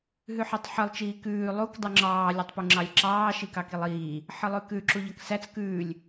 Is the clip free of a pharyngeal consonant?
no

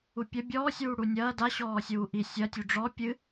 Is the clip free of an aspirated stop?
yes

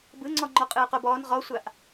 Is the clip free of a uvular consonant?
no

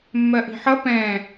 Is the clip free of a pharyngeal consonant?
no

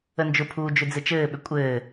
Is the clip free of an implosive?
no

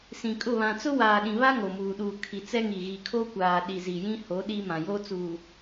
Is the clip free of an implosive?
no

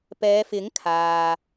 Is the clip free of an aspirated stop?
no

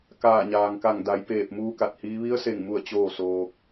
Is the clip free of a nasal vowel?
yes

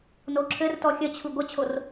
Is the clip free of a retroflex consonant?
yes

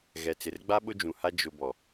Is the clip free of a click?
yes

